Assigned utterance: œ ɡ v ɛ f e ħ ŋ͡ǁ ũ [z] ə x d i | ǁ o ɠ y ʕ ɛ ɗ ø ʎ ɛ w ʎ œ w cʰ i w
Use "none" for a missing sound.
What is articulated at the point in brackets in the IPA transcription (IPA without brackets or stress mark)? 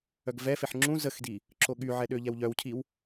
z